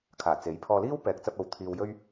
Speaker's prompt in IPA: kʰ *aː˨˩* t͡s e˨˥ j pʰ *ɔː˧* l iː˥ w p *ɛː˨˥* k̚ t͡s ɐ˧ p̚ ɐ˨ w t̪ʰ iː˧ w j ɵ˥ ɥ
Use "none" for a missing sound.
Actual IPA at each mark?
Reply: aː˨˩, ɔː˧, ɛː˨˥

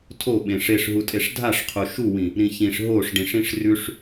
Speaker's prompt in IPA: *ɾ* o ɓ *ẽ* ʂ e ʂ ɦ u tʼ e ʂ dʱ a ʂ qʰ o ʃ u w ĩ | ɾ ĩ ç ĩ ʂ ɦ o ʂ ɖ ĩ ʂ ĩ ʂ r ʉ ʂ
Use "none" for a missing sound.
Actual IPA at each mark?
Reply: tʰ, ẽ

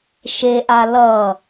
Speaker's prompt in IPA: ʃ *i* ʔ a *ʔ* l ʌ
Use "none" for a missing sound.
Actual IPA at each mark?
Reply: e, none

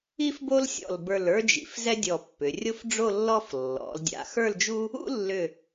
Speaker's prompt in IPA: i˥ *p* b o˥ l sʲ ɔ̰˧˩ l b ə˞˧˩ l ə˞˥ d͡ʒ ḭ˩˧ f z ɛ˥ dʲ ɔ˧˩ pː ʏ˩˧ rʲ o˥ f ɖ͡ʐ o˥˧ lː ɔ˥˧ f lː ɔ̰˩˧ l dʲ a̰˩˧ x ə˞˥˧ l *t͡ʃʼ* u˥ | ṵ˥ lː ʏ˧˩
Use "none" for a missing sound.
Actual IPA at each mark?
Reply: f, d͡ʒ

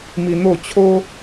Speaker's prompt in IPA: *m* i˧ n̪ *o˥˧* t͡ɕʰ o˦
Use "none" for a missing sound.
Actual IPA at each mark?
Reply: m, o˥˧

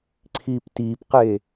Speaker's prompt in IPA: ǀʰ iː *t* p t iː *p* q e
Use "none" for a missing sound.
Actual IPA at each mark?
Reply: none, p

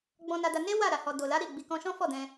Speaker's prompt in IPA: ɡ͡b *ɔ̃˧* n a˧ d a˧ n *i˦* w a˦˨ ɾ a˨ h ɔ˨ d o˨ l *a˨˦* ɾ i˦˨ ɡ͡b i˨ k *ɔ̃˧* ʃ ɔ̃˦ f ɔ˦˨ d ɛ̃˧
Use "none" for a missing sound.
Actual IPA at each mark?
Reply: ɔ̃˧, e˦, a˨˦, ɔ̃˧

